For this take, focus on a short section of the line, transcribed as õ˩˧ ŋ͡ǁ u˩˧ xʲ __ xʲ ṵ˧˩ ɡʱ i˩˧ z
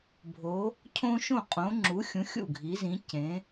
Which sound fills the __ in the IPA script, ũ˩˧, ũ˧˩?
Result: ũ˩˧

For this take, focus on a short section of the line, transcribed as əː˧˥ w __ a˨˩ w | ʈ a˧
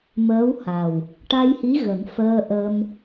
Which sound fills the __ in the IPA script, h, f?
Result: h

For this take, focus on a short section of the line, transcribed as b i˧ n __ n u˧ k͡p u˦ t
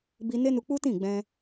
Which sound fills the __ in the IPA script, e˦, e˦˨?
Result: e˦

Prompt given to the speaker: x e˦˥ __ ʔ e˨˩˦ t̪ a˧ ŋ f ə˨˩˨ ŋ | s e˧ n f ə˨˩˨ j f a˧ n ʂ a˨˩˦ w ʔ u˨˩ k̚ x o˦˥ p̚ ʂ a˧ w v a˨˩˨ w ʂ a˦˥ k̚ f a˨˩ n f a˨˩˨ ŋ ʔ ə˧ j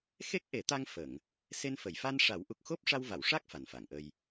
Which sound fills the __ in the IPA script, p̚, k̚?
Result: k̚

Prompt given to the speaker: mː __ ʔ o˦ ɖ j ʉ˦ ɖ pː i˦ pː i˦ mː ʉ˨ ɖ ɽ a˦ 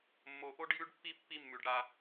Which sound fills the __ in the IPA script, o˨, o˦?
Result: o˨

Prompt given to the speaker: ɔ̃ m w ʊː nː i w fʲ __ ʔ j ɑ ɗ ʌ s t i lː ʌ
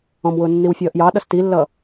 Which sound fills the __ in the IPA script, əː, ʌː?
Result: ʌː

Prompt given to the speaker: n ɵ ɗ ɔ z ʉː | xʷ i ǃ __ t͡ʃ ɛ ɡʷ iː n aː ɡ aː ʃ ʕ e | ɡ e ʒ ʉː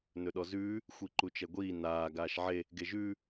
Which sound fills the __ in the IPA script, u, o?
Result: u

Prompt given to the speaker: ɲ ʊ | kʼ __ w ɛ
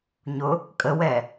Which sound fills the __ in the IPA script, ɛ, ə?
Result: ə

